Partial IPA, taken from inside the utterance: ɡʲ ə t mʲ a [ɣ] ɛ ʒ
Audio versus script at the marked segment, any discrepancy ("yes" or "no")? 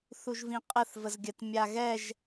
no